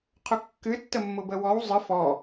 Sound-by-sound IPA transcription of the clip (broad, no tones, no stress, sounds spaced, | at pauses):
qʰ ʊ kː ɨ tː ə mː ʊ b ə w ɔ w zˤ ɨ f ɔ